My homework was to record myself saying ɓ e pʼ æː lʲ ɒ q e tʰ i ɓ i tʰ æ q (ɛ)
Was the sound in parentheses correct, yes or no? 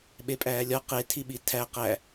no